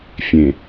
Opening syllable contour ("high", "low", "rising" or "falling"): low